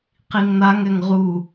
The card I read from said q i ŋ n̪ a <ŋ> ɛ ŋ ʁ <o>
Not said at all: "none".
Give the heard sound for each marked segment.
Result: ŋ, u

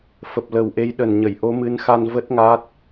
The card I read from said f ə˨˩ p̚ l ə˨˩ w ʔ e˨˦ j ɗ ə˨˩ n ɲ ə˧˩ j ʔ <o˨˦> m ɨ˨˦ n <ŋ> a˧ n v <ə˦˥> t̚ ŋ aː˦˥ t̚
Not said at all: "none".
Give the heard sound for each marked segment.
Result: o˨˦, x, ə˦˥

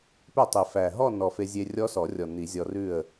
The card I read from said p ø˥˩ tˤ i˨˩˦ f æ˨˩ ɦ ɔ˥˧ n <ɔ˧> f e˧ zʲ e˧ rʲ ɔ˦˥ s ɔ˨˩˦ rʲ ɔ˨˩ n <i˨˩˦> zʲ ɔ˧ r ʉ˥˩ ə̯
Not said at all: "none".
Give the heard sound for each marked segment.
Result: ɔ˨˩, i˨˩˦

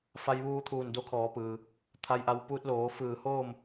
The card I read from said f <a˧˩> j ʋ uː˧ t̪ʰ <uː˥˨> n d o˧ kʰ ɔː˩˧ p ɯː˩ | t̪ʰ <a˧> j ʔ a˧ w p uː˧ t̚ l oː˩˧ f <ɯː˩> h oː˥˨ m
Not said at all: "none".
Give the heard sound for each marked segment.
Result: a˧, uː˧˩, a˧, ɯː˧˩

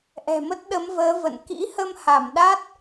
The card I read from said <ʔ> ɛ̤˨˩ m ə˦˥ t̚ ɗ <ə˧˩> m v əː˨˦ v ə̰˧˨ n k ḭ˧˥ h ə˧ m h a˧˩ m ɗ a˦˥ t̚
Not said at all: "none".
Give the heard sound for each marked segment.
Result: ʔ, ə˨˦

